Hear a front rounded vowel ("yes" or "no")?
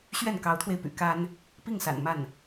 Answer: yes